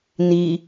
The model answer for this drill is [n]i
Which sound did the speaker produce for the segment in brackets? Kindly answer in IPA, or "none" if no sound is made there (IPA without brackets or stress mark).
n